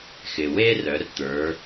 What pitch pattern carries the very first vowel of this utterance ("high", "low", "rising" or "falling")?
low